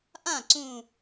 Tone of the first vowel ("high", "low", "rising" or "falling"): falling